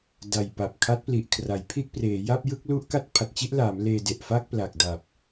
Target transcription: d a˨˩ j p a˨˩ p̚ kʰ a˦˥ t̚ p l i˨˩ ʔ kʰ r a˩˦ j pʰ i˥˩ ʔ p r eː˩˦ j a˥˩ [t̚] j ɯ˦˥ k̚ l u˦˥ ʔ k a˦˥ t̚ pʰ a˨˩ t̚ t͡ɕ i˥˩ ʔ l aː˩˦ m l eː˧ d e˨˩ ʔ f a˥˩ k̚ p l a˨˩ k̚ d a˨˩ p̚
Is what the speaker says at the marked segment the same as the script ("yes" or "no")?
no